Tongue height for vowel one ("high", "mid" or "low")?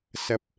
low